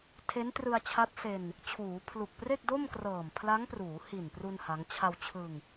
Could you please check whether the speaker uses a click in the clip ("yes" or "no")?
no